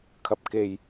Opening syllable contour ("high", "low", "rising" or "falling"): low